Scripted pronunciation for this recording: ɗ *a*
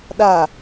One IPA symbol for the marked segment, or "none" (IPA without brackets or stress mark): a